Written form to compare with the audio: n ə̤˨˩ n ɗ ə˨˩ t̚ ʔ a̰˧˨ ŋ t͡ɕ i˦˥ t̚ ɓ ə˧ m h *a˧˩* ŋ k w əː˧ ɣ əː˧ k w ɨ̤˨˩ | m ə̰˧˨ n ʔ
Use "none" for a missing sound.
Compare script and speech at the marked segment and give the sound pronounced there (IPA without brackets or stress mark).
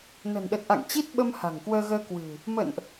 a̤˨˩